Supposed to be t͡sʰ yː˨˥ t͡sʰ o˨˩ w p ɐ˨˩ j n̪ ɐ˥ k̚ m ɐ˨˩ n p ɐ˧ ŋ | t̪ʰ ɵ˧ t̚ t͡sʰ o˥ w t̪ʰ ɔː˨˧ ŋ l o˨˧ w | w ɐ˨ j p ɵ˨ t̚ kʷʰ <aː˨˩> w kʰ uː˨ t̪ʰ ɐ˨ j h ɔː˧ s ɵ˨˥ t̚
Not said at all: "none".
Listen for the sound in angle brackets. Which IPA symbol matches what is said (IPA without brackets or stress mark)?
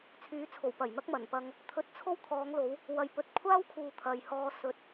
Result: aː˥